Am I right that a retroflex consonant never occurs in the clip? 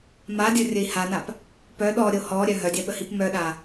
yes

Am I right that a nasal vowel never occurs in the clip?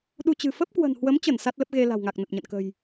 yes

